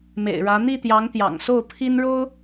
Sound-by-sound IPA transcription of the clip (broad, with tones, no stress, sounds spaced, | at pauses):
m ḛ˨˩ ɪ̯ ɻ ä˧˥ n̪ i˥˩ t̪ j ɑ˧˥ ŋ t̪ j ɑ̰˨˩ ŋ s o˥˩ ʊ̯ pʰ i˥ n ɻ o˥ ʊ̯